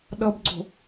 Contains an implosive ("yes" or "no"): yes